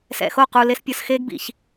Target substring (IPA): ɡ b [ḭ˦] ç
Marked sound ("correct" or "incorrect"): incorrect